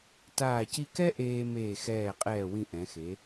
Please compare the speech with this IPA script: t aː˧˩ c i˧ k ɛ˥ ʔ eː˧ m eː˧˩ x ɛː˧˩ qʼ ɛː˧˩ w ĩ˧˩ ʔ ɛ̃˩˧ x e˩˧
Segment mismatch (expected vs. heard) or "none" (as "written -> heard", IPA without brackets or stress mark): none